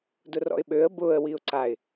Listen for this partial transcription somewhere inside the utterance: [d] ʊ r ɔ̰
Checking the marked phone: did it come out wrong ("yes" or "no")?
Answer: no